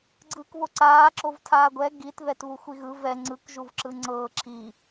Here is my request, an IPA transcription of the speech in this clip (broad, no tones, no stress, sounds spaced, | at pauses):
ɡ͡ǀ ɯː k β o ǀ aː ǁ o v tʰ aː ɡʷ ɛ ɡ i t ð ɛ t β u xʷ i ɣ ɯ v ɛ ŋ͡ǀ ɯ k ʒ u v ǁ ɯ ŋ͡ǀ ɤː ǁʰ i